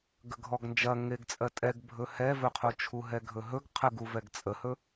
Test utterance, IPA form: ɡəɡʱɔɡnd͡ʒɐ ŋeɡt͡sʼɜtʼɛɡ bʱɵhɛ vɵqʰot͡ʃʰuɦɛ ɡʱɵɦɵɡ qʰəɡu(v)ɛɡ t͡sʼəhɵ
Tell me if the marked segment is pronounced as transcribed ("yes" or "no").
yes